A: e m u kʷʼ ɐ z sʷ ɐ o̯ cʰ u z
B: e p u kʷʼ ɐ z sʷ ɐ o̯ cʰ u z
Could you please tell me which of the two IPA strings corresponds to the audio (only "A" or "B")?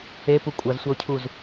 B